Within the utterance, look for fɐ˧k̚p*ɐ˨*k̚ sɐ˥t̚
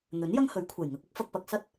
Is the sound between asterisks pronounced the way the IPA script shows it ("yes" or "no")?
yes